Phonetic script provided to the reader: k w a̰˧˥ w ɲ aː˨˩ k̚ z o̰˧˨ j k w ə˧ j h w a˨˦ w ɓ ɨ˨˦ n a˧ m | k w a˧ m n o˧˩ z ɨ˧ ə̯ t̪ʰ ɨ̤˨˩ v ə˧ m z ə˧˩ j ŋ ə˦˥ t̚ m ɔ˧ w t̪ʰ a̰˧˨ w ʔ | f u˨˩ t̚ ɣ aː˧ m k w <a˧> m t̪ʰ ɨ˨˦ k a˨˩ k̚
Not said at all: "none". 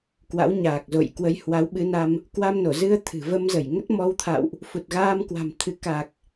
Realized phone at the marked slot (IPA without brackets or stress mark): a̤˨˩